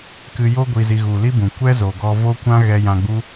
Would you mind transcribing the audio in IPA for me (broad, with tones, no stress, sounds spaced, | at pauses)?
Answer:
k ɨ˧ j o˦ ɡʷ i˧ z i˧ ɣ u˨ l i˦ b ũ˨ kʷ ɛ˦ z o˨ ɡ ɔ˧ v o˦ kʷ ã˦ ɣ ɛ˧ j ã˧ ɡ͡b u˦